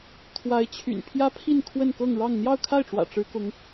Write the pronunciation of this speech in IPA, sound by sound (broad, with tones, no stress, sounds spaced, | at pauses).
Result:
t̪ʰ w a˧˥ ɪ̯ t͡ɕʰ y̰˨˩ n pʰ j ä˥ pʰ i˥˧ n kʰ w ə˥˧ n k ɤ˥˧ ŋ ɻ ɑ˥˧ ŋ n̪ j ɑ˥˧ ʊ̯ kʰ a˥˩ ɪ̯ ʈ͡ʂ w ä̰˨˩ ʈ͡ʂ ɻ̩˧˥ k ʊ˧˥ ŋ